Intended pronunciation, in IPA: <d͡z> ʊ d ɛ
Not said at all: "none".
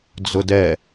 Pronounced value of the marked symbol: d͡z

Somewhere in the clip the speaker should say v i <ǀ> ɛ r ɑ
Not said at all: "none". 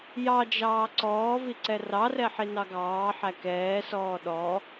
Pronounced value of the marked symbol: ǀ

